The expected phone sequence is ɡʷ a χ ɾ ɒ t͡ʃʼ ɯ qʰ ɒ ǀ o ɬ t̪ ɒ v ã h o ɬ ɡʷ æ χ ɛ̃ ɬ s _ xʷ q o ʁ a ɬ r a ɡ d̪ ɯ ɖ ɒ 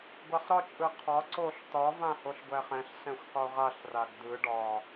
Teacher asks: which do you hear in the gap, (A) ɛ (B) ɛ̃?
B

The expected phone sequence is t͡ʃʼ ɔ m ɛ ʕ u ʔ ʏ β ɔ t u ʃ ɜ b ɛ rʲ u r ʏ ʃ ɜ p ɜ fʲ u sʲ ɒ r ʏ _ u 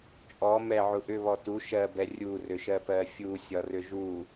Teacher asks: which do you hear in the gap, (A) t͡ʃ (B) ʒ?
B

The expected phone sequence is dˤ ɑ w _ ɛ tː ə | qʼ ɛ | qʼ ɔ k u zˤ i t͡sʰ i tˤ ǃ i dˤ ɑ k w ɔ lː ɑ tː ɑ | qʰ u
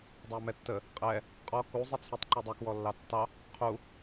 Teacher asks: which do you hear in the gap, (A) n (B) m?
B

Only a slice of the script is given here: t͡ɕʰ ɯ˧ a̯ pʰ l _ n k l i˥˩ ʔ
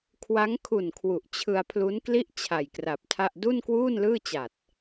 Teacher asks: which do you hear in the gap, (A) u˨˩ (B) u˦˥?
B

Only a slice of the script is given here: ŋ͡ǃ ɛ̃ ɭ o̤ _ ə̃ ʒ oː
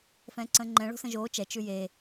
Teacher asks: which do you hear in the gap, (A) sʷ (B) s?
B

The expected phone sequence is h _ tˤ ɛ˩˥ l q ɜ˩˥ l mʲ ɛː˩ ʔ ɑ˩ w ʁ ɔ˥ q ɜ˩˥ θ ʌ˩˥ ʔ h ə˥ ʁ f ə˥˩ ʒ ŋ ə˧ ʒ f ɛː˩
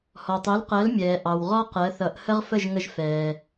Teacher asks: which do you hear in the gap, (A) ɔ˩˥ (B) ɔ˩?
B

